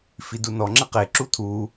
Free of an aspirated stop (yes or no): no